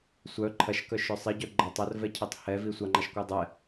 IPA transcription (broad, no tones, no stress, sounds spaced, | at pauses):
sʷ œ ǃʰ ɐ ʃ k œ ʃ œ sˤ i ɟ œ ɡ͡ǃ ɐ tˤ ɐ r v ɛ cʰ e tˤ h ɛ v i sʷ a ŋ͡ǃ a ʃ kʷ œ dˤ ɛ